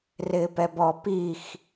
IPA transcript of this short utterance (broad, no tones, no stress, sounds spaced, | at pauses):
r ɪː p ɛ b ɔ p i x